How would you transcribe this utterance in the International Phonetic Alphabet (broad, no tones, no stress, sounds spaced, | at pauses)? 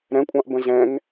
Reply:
ɾ ɛ̃ kʷʼ ɑ̃ ʔ b ə̃ z ɛ̃ ŋ